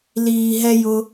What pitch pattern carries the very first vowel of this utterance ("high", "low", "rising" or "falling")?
low